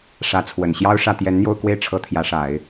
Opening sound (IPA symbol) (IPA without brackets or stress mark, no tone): ʂ